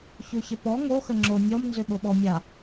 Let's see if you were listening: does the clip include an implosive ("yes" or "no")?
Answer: yes